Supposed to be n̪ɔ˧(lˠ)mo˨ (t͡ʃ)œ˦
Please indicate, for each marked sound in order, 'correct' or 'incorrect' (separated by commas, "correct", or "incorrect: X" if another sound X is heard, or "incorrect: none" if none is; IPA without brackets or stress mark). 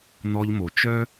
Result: incorrect: ʎ, correct